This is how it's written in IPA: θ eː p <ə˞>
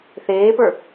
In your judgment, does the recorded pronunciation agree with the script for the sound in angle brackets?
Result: yes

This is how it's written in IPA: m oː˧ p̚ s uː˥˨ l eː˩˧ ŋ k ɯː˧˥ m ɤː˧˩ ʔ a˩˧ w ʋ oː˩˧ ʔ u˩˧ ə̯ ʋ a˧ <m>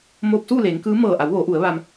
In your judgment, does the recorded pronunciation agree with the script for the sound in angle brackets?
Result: yes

